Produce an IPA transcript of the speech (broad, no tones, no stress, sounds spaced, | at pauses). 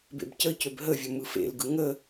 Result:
b ḛ b c ə c ø b ɦ ə vʲ ɵ m ɯ f ḛ l ɡ ɯ ŋ ə